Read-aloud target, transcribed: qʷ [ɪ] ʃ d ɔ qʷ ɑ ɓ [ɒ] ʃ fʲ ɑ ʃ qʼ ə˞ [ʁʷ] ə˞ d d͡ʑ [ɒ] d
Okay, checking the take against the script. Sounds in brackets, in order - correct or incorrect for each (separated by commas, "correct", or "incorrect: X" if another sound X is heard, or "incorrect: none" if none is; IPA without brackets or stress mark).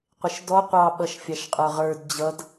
correct, incorrect: ʌ, incorrect: ʁ, incorrect: ʌ